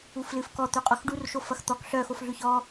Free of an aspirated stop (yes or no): yes